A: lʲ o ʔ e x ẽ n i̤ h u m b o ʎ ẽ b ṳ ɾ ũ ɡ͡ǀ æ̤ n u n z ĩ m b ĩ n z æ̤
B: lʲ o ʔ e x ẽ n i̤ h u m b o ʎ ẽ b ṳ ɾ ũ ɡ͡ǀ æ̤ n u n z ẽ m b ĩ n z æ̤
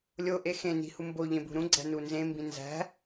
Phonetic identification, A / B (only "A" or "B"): B